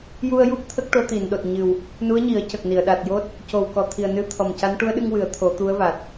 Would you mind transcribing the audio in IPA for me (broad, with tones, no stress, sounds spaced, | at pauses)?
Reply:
j u˧ ə̯ j u˦˥ p̚ t̪ʰ ə˦˥ k̚ ʈ o˧˥ t̪ i˨˩˨ n ɗ o˨˩ t̚ ɲ ɨ˨˩ w | n u˧˥ ə̯ ɲ i˨˩˦ ə̯ c ə˨˩ k̚ n i˨˩˨ ə̯ ɗ a˨˩ t̚ j o˦˥ t̚ | c o˨˩ w k ɔ˨˩ t̪ʰ i˨˩ ə̯ n ɨ˧˥ t̪ʰ ɔ˨˩ m c a˧˥ n ʈ u˧˥ ə̯ ɗ ɨ˧ ŋ w ɨ˨˩˦ ə̯ t̪ʰ o˨˩˦ t̪ u˧˥ ə̯ v a˨˩ t̚